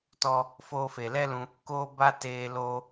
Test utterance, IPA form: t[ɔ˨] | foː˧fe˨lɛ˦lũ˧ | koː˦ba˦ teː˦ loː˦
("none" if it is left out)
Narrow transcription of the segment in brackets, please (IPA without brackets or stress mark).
ɔ˦